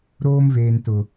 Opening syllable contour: high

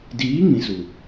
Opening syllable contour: rising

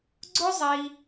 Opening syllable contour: high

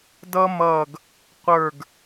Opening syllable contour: high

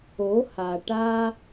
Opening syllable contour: rising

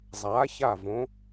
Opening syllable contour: rising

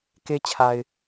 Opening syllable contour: high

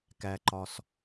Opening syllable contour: low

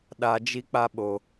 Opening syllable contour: low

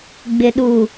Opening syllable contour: low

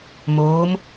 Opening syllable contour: rising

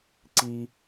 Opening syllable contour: high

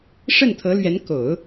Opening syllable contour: falling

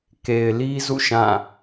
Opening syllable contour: low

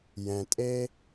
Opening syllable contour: low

